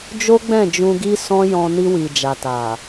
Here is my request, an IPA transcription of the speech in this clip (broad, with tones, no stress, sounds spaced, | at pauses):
d͡ʒ o˦ ɡ͡b ɛ̃˦˨ d͡ʒ ũ˧ ɡ i˦ s ɔ̃˦ j ɔ̃˧ n i˧ w i˨ d͡ʒ a˨ t a˨